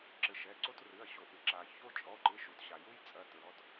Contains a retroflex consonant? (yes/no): no